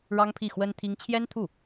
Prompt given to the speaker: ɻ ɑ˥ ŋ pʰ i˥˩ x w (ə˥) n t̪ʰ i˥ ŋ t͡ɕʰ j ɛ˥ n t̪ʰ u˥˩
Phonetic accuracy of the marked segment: correct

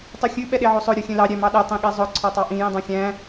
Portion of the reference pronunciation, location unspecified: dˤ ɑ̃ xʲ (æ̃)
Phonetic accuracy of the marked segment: correct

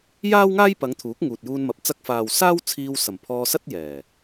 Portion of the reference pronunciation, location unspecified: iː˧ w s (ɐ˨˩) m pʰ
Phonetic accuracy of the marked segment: correct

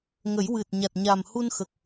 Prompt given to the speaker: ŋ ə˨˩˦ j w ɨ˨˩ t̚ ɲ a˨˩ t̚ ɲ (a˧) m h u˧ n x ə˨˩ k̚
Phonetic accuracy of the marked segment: incorrect: a˨˩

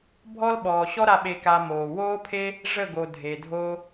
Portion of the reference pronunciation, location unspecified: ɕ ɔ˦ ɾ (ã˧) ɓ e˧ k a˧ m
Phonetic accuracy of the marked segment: incorrect: a˧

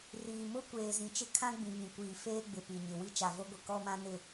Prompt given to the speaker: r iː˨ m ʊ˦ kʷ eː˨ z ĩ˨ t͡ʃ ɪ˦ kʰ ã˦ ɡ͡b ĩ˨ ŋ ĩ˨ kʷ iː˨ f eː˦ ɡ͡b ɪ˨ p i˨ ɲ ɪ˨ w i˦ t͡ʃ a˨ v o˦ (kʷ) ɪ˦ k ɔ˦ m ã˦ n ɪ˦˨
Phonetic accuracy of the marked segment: incorrect: ɡʷ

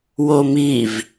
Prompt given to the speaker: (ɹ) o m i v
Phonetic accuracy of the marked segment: incorrect: w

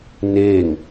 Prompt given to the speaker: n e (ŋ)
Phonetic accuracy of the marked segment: correct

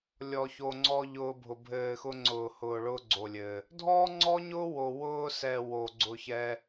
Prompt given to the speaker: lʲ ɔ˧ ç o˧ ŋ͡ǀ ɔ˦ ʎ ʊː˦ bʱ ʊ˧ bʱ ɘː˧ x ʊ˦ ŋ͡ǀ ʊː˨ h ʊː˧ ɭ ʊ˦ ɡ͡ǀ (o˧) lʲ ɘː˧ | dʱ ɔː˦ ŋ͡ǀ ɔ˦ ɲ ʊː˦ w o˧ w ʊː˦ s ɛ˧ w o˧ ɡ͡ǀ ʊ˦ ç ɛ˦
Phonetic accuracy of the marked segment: correct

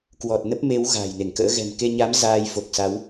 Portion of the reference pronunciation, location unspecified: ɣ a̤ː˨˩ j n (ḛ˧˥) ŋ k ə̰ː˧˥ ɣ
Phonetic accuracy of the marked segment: incorrect: e˧˩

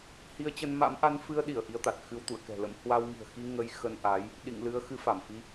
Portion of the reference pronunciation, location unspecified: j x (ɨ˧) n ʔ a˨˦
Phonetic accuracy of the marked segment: incorrect: ə˧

